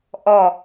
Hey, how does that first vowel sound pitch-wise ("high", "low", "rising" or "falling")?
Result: falling